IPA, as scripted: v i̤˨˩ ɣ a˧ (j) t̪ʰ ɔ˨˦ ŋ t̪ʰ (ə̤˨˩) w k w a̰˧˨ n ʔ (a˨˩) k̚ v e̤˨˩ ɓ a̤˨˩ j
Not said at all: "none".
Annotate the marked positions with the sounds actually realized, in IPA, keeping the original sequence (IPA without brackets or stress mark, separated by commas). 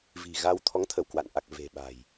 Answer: w, ə˧˩, a˨˩